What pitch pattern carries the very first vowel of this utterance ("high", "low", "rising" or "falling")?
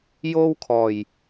high